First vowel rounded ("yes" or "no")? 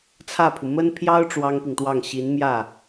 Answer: no